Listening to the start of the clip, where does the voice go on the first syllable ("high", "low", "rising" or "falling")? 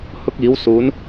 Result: high